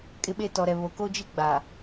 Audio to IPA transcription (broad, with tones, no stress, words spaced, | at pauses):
kʼɪ˦ɓe˦ tɔ˨ɾɛ˨βo˨ ko˦d͡ʒi˦ɡ͡ba˨